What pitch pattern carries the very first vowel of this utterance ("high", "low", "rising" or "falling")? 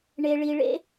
low